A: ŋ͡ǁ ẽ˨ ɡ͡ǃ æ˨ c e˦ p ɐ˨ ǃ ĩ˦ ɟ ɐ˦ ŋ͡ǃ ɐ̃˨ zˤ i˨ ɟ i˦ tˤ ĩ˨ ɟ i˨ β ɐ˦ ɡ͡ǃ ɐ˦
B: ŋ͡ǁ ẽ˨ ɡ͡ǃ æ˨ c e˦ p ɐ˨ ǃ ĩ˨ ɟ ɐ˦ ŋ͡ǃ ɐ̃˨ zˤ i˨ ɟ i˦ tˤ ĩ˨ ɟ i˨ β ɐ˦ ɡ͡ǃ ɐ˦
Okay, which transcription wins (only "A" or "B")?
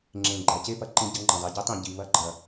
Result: A